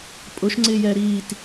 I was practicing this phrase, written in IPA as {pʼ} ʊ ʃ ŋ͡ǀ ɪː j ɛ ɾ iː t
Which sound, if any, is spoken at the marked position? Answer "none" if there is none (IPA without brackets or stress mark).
pʼ